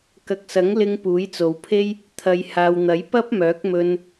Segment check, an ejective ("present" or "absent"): absent